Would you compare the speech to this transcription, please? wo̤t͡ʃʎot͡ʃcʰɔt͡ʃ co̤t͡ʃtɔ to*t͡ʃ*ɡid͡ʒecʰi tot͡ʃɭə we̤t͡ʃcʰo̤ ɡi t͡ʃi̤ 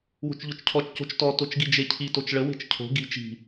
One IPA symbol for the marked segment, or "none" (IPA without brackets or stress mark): t͡ʃ